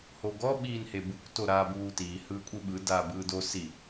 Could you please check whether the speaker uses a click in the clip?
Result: no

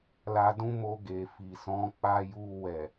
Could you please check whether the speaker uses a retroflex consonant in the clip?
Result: no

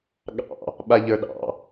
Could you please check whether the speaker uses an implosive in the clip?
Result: yes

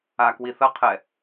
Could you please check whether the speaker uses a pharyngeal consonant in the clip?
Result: no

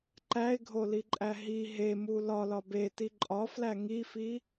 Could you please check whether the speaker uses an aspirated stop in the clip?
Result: no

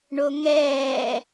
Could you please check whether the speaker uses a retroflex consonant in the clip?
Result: yes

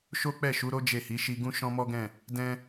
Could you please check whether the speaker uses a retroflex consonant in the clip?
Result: no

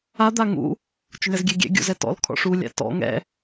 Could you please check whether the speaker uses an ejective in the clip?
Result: no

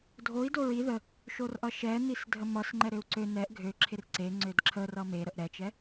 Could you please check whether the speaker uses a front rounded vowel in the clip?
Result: yes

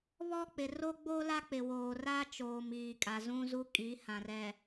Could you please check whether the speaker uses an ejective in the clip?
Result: yes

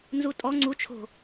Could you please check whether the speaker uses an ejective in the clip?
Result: yes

